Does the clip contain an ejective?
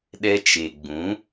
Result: no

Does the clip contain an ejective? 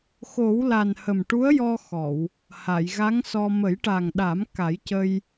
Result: no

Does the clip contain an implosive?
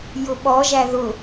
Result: yes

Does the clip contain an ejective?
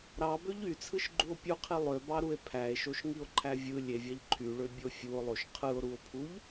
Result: no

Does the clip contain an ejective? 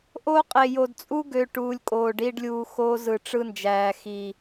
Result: yes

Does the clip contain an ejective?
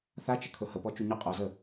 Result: yes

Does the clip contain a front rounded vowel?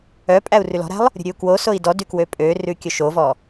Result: yes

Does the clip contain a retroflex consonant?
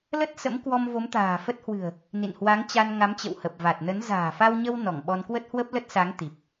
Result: no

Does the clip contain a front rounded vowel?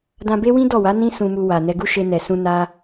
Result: no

